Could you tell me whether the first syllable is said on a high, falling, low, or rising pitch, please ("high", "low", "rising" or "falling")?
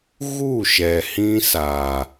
falling